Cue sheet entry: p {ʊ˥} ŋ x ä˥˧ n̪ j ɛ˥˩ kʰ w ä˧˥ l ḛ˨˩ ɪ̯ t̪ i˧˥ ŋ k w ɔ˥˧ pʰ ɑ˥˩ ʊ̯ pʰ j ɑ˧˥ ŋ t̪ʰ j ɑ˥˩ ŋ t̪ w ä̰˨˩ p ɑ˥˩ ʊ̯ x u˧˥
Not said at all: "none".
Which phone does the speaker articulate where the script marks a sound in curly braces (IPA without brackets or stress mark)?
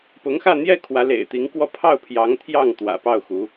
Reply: ʊ˧˥